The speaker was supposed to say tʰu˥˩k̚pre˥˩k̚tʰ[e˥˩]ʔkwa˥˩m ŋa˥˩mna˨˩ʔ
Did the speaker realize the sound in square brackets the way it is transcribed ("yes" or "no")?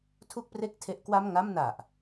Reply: no